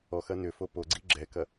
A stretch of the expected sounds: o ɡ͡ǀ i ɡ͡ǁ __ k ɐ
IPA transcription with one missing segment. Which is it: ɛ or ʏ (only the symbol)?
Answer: ɛ